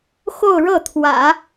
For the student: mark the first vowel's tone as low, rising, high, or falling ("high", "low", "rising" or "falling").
falling